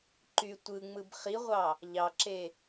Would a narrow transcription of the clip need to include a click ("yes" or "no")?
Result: yes